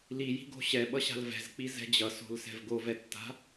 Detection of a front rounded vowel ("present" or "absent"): absent